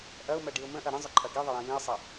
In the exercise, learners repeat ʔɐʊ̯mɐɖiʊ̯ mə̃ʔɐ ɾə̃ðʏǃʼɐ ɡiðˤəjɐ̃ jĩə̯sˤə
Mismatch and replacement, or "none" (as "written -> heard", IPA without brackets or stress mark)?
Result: ð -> zˤ